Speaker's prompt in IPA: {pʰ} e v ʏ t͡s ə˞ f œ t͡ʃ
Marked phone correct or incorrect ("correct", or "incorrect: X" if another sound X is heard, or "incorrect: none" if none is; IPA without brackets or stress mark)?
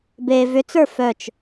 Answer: incorrect: b